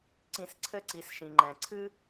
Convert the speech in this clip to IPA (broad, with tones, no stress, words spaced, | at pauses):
ǀĩ˧sǀʰɘ˥ǀi˩˧sʃĩ˩ ŋ͡ǃɛ̃˩ǀʰɨ˥